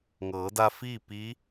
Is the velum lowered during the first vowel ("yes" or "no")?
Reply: no